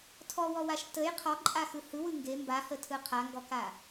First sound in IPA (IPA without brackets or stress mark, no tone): tʰ